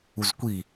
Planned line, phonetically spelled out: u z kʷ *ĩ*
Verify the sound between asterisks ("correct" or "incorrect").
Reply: incorrect